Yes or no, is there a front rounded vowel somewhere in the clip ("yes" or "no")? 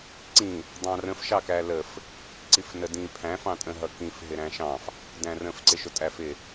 no